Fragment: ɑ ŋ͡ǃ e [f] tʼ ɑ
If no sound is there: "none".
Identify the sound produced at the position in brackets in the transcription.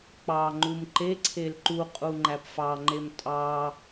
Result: m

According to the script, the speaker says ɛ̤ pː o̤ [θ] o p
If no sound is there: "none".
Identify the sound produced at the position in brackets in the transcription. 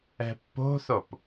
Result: θ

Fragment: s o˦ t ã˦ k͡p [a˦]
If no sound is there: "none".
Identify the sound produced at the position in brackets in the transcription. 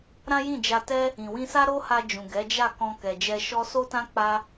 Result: a˦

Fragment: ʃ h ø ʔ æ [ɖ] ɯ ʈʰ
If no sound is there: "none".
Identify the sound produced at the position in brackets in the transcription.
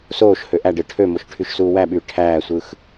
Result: ɖ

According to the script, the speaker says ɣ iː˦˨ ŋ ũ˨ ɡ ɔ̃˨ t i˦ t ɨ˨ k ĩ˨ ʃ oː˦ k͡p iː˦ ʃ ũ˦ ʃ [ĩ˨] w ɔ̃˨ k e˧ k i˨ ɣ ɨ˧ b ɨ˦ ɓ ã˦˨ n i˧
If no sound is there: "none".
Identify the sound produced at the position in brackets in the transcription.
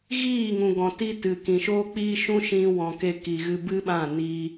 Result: ĩ˧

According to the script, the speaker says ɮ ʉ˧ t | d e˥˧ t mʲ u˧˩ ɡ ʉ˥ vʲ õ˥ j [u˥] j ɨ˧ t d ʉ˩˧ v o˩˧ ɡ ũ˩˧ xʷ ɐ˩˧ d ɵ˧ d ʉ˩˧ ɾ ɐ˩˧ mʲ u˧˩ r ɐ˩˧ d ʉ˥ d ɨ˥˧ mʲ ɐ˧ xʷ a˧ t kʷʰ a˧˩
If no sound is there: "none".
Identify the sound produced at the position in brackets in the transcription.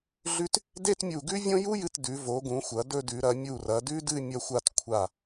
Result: u˥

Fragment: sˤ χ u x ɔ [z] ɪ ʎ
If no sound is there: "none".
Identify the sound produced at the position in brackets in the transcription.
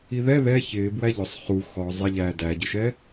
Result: zˤ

